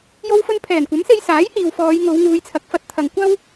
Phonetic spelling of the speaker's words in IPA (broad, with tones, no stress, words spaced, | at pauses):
jo˧wfɵ˧n pʰɛː˨˩nkʷɐ˨˥mse˧j saː˨˥jhiː˨wfɔː˨˧j ŋo˨˧wŋuː˨˧jt͡sʰɐ˨k̚fɐ˧t̚ t̪ʰɐ˨ŋkʷɐ˥w